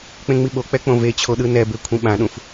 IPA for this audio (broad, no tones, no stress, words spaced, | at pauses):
k͡pẽŋ͡miɓo k͡pɛk͡põvet͡ɕʰo ɗɯnɛbekʷʰĩ ɓãɗũf